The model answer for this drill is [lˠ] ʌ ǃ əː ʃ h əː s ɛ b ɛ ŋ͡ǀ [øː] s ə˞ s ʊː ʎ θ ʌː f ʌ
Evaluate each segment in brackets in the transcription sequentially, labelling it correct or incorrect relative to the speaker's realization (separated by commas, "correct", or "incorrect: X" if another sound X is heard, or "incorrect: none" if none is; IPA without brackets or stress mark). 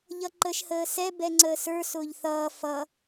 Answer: incorrect: ʎ, incorrect: əː